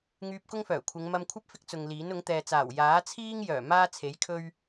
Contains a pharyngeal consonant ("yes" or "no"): no